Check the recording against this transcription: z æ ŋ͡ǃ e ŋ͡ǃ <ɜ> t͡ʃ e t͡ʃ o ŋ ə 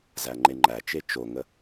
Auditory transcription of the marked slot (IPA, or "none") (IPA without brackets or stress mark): æ